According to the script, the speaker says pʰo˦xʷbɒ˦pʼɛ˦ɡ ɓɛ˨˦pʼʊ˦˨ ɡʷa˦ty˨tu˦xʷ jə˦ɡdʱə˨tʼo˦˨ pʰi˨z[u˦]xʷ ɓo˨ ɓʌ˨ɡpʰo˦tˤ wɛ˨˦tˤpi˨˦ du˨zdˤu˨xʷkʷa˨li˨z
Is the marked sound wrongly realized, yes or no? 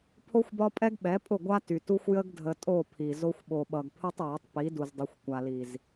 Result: yes